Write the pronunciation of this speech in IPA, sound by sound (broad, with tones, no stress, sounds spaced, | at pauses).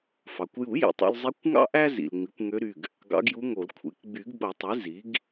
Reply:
f ɑ˩ kʷ j u˨˩˦ j ḭ˩ tˤ ṵ˥ l zˤ i˧˥ kʷ ŋ ɑ̰˥ ʔ æ˥ z ḭ˩ l ŋ͡m i˩˥ kʷ ŋ ø˧˥ ɾ y˩˧˩ ɡ | ɡ ɑ̰˧˥ ɡ j u˧˥ ŋ o˨˩˦ l kʷʰ ḛ˩˥ k ɡ͡b y˨˩˦ ɡ ɓ o˨˩˦ tˤ e˩˥ z i˩˥ ɡ